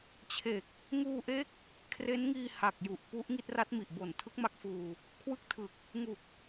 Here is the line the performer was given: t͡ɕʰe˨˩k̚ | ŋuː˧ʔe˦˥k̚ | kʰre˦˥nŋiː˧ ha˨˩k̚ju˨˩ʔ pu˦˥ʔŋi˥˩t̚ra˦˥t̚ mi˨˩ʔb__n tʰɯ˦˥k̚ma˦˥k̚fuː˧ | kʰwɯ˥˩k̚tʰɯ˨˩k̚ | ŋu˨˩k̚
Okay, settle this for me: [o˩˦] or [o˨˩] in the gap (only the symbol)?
o˨˩